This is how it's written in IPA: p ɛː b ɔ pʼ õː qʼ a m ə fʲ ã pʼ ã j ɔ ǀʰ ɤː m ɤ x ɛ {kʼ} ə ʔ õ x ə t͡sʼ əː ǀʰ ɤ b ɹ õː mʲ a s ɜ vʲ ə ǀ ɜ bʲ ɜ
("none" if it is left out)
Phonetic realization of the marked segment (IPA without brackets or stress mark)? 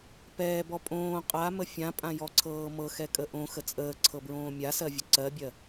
kʼ